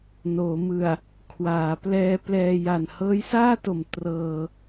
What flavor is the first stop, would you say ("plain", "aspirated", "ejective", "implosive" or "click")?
aspirated